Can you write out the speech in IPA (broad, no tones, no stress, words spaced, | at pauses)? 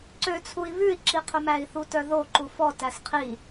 ǀøt͡sʰui̯ βʉi̯ǁiqʰɵ mæi̯θutœðo ǃufɔ tæsqʰi